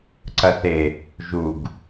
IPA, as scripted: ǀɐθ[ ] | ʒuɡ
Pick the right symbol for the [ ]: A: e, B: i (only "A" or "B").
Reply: A